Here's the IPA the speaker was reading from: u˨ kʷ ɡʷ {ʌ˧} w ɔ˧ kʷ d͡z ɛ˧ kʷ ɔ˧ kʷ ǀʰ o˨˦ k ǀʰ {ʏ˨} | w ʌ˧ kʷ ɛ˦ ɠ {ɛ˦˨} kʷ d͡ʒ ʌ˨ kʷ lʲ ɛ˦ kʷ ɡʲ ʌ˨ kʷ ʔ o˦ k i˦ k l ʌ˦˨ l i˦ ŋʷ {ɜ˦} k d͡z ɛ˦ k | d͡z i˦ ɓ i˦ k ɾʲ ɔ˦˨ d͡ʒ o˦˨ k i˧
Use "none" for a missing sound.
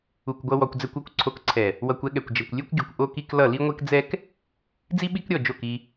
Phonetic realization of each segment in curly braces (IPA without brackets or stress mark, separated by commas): ʌ˧, ɛ˨, ɛ˨, ɛ˦